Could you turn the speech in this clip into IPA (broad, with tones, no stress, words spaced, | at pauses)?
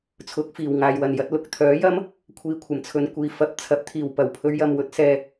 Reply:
t͡sʰʊ˨˥k̚fiː˨˩wŋaː˨jwɐ˨˩n jɐ˧t̚lʊ˨k̚t̪ʰœː˨˥jɐ˥m | kʷʰiː˧kʷʰɐ˨˩mt͡sʰɵ˨˧nkʷiː˨ fɐ˨˥p̚t͡sʰɐ˨˥p̚t̪ʰiː˨˩w pɐ˨˩wpʰɵ˨˧ɥjɐ˨m wɵ˨˥t̚sɛː˨